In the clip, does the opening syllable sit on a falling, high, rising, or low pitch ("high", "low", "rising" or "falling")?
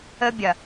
high